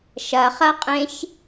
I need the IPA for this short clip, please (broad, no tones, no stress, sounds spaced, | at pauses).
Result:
ʃ ɐ χ ɐ qʼ ẽ ç